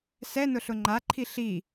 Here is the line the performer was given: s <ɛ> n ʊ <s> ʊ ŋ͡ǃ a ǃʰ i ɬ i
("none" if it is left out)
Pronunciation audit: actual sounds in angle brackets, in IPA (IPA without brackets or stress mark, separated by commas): ɛ, ɬ